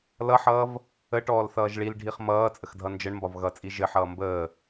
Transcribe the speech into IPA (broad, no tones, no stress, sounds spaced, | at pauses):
l ʌ ħ ʌː v | ə ʈ ɔː l θ ʌː ʒ ɭ i l ɖʱ i χ m ʌː t͡sʼ ə x dʱ ʌ n d͡ʒ ə ɳ m b ɒ v ɣ ʌ t͡sʼ i ʒ ɘ ħ ʌː m b əː